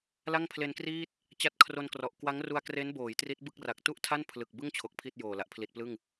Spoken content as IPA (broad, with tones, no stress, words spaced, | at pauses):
la˥˩ŋpʰle˧nkriː˥˩t̚ | t͡ɕa˦˥t̚kʰro˧nkrɔ˨˩ʔ kwa˦˥ŋru˧a̯ kre˦˥nboː˩˦j tri˦˥t̚bɯ˥˩k̚ra˨˩k̚ tu˥˩ʔtʰa˥˩n pʰlɯ˨˩k̚bɯ˥˩ŋ t͡ɕʰo˨˩k̚ pʰi˥˩t̚joː˨˩la˨˩ʔ pʰli˨˩t̚plɯ˥˩ŋ